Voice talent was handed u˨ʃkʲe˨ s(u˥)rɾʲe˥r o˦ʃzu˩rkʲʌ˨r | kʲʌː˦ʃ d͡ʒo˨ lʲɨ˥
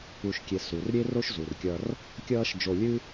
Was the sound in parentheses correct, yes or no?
no